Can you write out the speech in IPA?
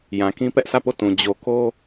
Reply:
jã˨kĩ˦pɛ˦ʔsä˦˨ po˦˨tũ˨ d͡ʑo˨ko˦

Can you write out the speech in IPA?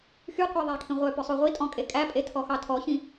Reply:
xyqʷɛ ðˤækʰĩʁʷœpœ sˤuʁʷitʼɔ̃ kʼekʼæpʼe tʰɔxɑtʰɔçĩ

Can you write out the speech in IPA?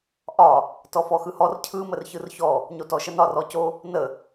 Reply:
ʔɒ | tɔfɔxɯhɔr cʰɯ mərçɯrçɔ | ɲotɔʃənɒ rɔco | nə

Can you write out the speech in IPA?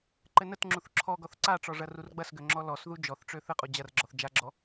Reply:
ǃɘnətŋ͡ǁuθ ǁʰɔɡɔθ ǀaʈ͡ʂɔ ʐɐrurɡ͡bɐsɡø ŋ͡ǁɔlɔsðu d͡ʒɔθʈ͡ʂø θɘqʼu d͡ʑɐrɡ͡ǁɔθ d͡ʒaɡ͡ǁɔ

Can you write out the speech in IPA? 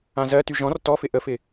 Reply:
ãzɜ tyʒɔ̃r tɔfɪ ʔəfɪ

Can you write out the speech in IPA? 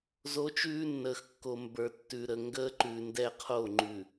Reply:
zoː˦t͡ʃʉː˦nːəː˨x kːo˨mbə˞˨ tːʉ˨ɾə˨ ŋɡəː˦ǃʉ˨ndɛ˦qʰo˦˨ ŋ͡ǃʉ˨

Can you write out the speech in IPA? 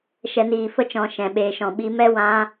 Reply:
ʃɛ˨niː˨fə˧t͡ʃɔ̃˨ ʃɛ̃˨ɓeː˨ʃɔ̃˨ ɓi˧mɛ˦ wã˧

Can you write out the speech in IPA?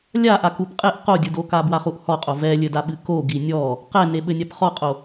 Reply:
lʲaʔak upqʼeʔ qodʲudoka bwaχuʔhɔqʼo vɛlʲɘdaɓɨ ko ɡinʲɔ | qɛneɓɘ nʲapχɔqʼo

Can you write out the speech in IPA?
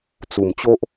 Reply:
t͡su˨˩mt͡ɕo˦ʔ

